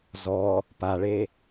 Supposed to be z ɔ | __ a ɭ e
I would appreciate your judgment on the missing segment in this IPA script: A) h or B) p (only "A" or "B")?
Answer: B